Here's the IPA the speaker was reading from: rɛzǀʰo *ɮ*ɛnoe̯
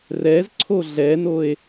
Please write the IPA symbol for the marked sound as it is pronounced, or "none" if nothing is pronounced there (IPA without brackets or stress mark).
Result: ɮ